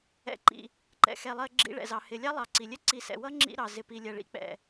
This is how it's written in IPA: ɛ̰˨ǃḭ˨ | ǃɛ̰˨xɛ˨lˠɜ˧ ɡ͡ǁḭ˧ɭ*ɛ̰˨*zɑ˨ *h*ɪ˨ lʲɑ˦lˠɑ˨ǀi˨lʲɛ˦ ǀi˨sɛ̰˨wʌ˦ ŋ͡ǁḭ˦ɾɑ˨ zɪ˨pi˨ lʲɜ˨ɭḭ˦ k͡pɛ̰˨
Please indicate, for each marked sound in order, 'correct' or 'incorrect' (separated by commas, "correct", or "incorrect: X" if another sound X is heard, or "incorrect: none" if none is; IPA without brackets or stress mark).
correct, correct